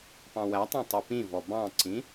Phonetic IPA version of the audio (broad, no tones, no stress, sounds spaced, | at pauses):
p ɑ̃ w æ tˤ œ̃ tˤ u p ĩ v ɔ b ɑ̃ ǀ ĩ